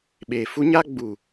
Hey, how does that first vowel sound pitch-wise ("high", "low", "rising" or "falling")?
low